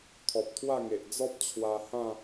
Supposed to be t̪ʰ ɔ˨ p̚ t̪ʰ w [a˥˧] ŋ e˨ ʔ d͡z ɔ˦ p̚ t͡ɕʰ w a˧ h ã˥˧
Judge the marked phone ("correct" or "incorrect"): correct